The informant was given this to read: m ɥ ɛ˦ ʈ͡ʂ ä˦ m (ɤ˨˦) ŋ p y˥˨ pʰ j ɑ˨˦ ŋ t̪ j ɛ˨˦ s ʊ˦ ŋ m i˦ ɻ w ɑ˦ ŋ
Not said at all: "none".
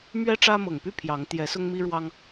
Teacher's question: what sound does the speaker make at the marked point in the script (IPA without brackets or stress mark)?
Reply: ɤ˨˩